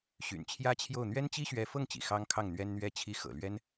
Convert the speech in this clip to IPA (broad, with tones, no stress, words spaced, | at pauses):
ɕy̰˨˩nt͡ɕʰjä˥t͡ɕʰjo˥˩ʊ̯ n̪ɥɛ˥nt͡ɕi˥ɕɥɛ˧˥fɤ˥˩ŋ t͡ɕḭ˨˩xɑ˥ŋkʰɑ˥˩ŋn̪ɥɛ˥n n̪ɥɛ˥t͡ɕʰi˥˩ xɤ̰˨˩lɥɛ˥n